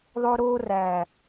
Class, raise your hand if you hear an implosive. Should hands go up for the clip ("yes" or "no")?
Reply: no